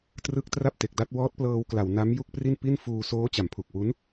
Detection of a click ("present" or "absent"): absent